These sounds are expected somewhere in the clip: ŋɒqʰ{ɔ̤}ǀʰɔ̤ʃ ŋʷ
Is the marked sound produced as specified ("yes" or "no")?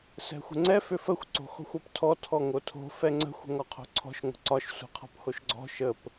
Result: no